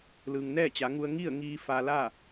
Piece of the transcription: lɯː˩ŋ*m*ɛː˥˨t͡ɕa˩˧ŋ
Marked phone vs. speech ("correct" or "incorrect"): incorrect